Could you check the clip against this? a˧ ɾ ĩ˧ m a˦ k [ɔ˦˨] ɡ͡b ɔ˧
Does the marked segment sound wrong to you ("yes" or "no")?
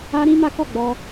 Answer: no